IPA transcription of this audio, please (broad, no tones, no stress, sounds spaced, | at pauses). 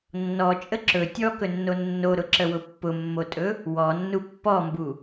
nː ɔ t͡ʃʼ ə ǁ ɵ tʲ ɔ k ɵ nː o nː o ɾ ʊ ǁ ə w ʊ pː ʊ mː o tʼ ɵ | w ɔ nː u pː ɔ m b u